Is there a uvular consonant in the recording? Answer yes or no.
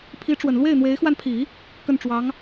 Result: no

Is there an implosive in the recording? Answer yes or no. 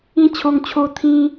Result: no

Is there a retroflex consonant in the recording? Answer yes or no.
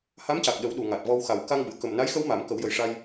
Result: yes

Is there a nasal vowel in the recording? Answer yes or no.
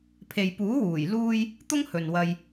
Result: no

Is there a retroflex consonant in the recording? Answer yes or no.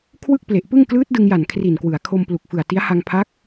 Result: no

